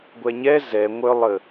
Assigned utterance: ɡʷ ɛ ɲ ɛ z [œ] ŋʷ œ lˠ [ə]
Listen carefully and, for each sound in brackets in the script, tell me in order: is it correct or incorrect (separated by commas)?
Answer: incorrect, correct